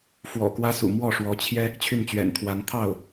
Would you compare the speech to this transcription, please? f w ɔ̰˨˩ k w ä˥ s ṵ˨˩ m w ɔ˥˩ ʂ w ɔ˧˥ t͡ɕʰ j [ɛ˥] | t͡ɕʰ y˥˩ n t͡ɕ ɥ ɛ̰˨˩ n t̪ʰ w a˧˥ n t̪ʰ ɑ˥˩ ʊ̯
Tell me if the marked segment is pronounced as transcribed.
yes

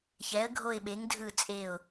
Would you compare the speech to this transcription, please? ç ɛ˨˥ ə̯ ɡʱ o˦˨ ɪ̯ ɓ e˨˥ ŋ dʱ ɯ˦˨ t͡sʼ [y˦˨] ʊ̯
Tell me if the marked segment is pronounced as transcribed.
no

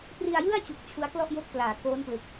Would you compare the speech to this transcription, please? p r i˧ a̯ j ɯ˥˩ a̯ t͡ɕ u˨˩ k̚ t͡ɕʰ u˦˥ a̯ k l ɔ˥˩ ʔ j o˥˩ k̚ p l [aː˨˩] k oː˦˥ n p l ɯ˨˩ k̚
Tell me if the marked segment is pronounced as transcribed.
yes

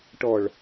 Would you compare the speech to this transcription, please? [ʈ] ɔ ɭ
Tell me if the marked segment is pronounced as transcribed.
yes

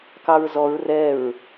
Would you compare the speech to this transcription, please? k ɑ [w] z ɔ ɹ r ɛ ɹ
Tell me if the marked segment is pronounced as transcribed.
no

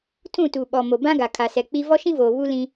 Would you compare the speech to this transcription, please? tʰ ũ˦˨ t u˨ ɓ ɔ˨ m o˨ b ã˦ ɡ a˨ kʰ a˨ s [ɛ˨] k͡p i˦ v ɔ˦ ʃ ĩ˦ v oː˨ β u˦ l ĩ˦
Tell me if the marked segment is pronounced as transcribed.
yes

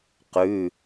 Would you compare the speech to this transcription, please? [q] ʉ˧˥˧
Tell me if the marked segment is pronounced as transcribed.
yes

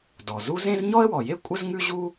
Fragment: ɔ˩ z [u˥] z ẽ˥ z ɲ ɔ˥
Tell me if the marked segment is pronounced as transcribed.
yes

